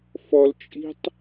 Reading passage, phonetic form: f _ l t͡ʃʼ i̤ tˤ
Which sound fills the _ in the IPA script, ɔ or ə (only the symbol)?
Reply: ɔ